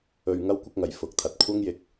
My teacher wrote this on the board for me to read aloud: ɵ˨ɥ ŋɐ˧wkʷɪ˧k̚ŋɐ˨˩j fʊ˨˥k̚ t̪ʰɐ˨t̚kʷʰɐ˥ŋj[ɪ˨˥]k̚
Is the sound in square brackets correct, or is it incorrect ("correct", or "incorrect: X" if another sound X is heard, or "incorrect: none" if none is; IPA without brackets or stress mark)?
incorrect: ɪ˧